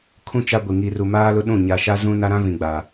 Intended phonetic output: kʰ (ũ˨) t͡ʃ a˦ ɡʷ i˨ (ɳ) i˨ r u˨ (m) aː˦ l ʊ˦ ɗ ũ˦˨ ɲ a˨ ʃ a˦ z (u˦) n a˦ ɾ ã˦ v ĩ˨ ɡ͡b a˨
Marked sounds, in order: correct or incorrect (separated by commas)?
incorrect, incorrect, correct, incorrect